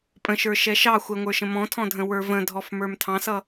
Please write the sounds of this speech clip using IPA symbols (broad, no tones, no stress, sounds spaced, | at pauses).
pʼ ə̃ ʃ ə˞ ʃ ɛ ʃ ɑ xʷ ɛ ŋʷ ə˞ ʃ ə̃ m ɔ̃ tʰ ɔ̃ dʱ ə̃ w ə˞ v ə̃ dʱ ɔ f m ə˞ m tʰ ɑ̃ s ʌ